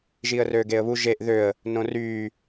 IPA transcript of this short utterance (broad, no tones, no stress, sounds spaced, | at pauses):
ʒ iː ə̯ r øː ɡ eː ə̯ β u ʒ e ʔ ð ø ə̯ | n õ r yː